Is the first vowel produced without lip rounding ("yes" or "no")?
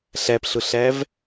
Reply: yes